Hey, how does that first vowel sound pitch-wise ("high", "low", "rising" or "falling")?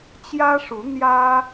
high